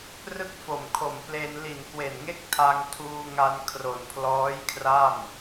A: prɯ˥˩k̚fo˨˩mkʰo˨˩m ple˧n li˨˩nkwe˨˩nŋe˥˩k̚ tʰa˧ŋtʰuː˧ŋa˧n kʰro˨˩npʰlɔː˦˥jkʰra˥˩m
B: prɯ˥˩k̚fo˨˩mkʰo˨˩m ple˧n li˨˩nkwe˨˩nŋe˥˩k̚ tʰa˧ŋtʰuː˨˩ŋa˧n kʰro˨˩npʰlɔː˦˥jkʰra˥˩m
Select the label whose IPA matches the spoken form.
A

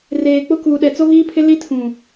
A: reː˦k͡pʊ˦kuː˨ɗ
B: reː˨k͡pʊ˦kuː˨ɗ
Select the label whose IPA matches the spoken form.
B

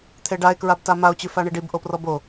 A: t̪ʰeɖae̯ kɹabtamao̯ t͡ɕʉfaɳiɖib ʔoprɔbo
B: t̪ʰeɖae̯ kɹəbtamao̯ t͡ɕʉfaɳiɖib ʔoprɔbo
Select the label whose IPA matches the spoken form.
A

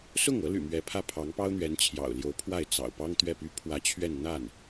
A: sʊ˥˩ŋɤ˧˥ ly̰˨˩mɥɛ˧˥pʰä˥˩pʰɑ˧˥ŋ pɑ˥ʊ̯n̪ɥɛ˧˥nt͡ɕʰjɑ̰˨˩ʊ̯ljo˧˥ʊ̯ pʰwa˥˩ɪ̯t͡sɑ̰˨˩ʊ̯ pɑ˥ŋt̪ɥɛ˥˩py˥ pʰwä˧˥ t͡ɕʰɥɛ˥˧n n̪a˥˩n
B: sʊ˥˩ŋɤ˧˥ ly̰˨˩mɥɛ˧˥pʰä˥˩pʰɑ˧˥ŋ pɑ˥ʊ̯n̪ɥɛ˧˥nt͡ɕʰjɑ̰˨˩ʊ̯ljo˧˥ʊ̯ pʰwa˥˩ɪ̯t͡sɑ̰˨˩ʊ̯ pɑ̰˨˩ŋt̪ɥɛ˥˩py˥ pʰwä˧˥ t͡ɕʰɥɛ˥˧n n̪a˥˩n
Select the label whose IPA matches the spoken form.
A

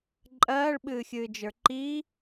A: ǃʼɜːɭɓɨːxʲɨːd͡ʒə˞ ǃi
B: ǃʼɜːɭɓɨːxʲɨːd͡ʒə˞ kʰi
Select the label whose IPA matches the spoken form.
A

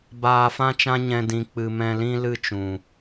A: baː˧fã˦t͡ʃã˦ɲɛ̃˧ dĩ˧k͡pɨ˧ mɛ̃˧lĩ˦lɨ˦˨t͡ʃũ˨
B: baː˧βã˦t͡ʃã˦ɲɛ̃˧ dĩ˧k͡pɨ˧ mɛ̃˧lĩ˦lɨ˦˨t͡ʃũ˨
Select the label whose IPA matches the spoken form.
A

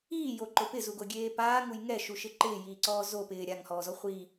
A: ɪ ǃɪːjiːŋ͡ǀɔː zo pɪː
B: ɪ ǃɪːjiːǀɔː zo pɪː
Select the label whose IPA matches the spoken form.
B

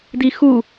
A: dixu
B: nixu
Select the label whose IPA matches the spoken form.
A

